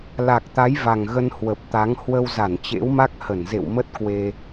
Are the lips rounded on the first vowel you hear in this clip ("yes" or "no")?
no